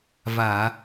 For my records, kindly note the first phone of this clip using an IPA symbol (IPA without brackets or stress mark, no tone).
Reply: v